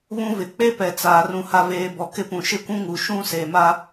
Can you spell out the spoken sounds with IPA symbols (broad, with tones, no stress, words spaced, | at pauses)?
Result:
βũ˦vɪ˨ k͡pe˦pɛ˨ t͡saː˨rũ˨ ha˨veː˨ bɔ˨kɪ˦pũ˨ ʃɪ˦kʷũ˦ŋu˨ ʃũ˦ seː˨ma˦